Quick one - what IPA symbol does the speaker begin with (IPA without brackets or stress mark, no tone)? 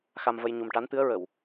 x